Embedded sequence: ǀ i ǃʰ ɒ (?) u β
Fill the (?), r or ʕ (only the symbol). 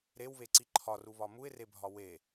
r